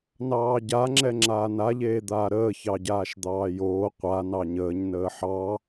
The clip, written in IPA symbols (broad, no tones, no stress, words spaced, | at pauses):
nɑːɟaŋ͡ǁɛ ŋ͡ǁaːnaʎeːd̪aː ɾəːçɑ ɟaːʃd̪ɑːjoː qʷa nɑɲəːɲ nəːħɑ